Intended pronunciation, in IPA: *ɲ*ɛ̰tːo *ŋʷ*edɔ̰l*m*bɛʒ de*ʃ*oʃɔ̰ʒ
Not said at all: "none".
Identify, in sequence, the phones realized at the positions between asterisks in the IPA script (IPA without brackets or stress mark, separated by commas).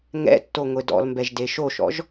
ŋ, ŋʷ, m, ʃ